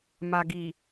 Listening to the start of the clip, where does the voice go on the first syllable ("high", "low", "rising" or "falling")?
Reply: low